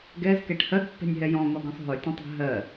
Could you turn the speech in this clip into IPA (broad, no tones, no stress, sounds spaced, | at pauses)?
ɡ ɛ z k ɛ ʈ h ɜ ɡ pː ɛ̤ nʲ ɦ ɛ j ɔ̃ ŋ ɔ ɡ ɔ̃ sˤ ɦ ɵ tʲ ə̃ tˤ ɛ̤ ɦ ɜ